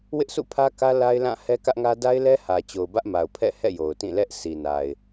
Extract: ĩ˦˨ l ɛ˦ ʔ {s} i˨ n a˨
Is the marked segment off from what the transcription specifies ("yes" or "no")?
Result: no